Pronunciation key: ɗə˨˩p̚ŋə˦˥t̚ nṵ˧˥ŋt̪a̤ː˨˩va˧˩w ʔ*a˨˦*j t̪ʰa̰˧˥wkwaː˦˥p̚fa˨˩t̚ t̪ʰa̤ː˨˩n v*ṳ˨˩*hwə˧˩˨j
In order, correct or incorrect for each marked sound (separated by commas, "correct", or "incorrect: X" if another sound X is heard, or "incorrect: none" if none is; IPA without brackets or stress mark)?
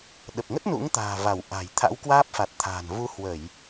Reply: incorrect: a̤˨˩, incorrect: u˨˦